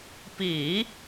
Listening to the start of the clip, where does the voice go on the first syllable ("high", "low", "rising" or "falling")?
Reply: low